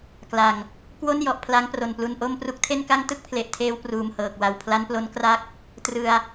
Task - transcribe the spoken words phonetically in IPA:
k l a˨˩ ŋ | k w o˥˩ n j ɔ˨˩ ʔ pʰ l a˦˥ ŋ p r o˨˩ n p l u˧ n ʔ o˥˩ m p r u˦˥ k̚ tʰ e˥˩ n k a˥˩ ŋ t ɯ˥˩ k̚ pʰ l e˨˩ ʔ tʰ eː˧ w p r uː˨˩ m h ɤː˨˩ k̚ w a˨˩ w pʰ l a˦˥ n p l o˦˥ n k r a˦˥ k̚ | t r ɯ˧ a̯

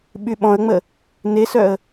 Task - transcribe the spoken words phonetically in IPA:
ɓ y ɓ ɔ̃ ə̯ ŋ͡m ə | n e s œ ə̯

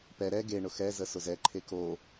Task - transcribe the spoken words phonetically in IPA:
p ɛ ɾ ɛ ɡ e ɳ ʊ x ɛ z ə s ʊ z ɛ ǃʰ e k o

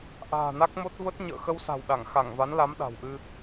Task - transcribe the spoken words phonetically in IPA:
ʔ a̤ː˨˩ n a˦˥ k̚ m o˦˥ t̚ v ə˦˥ t̚ ɲ ə̰ː˧˨ x ə˧ w s a̤˨˩ w ɗ a˧˩ ŋ x a˧˩ ŋ v a˨˦ n l a˨˦ m ɗ a̤˨˩ w ʔ ɨ˧

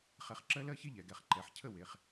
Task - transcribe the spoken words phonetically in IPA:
χ ɛ˧˩ χ ǁ ɜ˦ l ɜ˥˨ ç e˦ ʎ ɛ˩˧ ɡ ɛ˧˩ χ ǃ ɛ˩˧ ħ cʰ ə˥˨ w e˩˧˩ χ

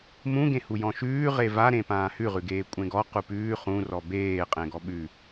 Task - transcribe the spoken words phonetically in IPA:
m ũ ɡ ẽ h u j ɔ̃ ʃ ʉː ʁ e v a ɾ ẽ p ãː h ʉ ʁ ʉ ɡ eː kʷʼ ẽ ɡ ɔ q u p ʉː χ ũ r ɔ b eː qʼ ẽ ɡ ɔ ɓ ʉ

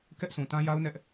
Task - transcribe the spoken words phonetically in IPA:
k ɛ˦ ʔ s ũ˨ t ã˦ j a˦ ʊ̯ n ɛ˦ ʔ

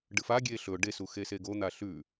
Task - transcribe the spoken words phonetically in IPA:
ɖ ɨ f a ɡʲ e ɬ ɵ ɖ e s u x e s e ɡ o n̪ a ɬ ʉ

